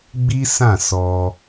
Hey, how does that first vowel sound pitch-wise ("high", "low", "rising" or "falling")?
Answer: high